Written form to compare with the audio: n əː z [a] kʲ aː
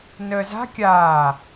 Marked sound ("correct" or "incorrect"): incorrect